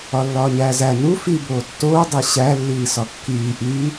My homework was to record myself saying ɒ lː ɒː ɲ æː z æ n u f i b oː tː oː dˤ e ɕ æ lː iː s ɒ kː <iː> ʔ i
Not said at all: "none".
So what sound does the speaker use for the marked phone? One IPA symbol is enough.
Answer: iː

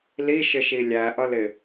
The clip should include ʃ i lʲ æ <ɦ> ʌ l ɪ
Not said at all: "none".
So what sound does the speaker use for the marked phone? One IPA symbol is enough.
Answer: ʔ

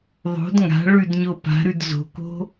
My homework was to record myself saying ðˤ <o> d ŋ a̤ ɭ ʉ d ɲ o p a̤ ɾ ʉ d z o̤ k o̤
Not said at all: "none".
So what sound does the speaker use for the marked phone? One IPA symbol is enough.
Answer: o̤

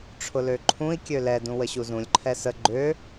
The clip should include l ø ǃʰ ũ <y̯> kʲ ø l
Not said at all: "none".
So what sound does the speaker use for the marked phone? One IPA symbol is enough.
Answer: i̯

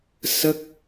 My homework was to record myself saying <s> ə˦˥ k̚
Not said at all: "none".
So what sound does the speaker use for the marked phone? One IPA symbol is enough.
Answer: s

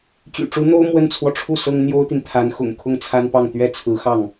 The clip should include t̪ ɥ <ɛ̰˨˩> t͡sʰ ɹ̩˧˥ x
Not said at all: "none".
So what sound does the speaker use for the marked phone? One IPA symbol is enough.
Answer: ɛ˥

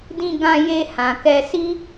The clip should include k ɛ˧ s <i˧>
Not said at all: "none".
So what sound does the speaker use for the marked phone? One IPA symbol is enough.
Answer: i˦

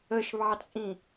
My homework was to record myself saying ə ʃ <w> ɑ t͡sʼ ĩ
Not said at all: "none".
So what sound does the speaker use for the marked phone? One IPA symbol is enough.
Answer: β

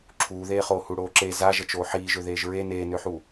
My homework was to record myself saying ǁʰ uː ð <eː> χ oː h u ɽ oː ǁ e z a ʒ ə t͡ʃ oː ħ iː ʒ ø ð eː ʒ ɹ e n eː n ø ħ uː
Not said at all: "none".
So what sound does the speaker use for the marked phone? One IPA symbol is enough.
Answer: eː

